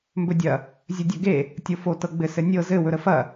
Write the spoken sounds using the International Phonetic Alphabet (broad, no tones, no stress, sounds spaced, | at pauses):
m b ɵ dʲ ɐ | zʲ ɵ dʲ ɵ ɡ e | tʲ o f o t ɤ ɡ͡b ɘ s ɘ nʲ ɤ z ɘ w ɵ ɾ ə f ɐ